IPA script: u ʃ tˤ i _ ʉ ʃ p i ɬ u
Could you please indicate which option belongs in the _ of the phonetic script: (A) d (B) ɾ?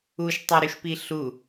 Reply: B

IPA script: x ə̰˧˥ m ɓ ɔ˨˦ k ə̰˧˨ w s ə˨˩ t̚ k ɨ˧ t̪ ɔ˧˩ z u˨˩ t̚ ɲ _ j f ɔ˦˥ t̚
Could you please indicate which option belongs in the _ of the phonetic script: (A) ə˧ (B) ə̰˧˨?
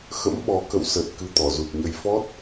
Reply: A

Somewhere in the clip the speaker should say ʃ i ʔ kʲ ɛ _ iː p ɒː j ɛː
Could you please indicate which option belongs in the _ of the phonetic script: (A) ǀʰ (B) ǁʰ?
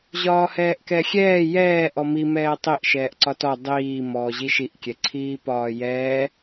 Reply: A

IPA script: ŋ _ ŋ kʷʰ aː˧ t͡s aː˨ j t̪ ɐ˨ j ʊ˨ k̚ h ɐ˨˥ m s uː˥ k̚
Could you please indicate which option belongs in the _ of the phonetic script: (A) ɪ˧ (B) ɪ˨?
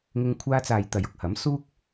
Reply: A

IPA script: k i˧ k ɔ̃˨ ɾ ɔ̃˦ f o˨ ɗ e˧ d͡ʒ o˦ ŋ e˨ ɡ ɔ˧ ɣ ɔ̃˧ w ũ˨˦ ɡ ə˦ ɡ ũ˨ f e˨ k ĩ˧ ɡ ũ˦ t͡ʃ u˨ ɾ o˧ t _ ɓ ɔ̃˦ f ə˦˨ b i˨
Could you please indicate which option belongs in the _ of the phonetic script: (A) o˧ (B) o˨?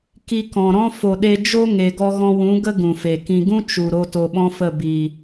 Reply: A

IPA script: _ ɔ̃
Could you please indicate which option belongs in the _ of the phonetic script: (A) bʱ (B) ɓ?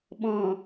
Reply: B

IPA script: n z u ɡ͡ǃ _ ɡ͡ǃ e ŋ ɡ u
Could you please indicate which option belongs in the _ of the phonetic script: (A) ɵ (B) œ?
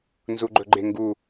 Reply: A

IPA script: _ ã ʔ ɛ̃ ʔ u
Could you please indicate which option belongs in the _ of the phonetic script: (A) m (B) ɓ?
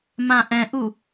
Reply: A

